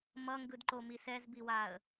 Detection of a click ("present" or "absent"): present